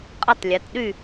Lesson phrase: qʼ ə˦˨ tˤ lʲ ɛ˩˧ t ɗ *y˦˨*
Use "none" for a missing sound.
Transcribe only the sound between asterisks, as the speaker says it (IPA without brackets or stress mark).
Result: y˦˨